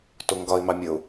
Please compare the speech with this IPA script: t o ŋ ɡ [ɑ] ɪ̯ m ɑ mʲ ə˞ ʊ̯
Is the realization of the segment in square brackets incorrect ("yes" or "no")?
yes